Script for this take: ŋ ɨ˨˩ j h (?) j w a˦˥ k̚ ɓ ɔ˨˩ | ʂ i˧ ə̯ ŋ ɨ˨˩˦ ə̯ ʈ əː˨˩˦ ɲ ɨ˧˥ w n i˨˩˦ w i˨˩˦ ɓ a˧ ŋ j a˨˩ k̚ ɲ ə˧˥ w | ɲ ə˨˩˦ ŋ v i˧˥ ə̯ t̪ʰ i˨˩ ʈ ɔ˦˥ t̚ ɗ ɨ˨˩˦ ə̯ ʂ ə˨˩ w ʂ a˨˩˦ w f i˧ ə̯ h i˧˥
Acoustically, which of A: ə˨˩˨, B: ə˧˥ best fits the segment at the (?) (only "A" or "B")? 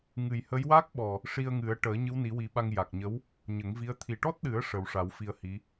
B